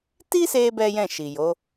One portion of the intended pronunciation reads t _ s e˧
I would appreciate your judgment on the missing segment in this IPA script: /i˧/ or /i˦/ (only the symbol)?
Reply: i˦